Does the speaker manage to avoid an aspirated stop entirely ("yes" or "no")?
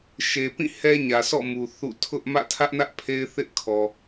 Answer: no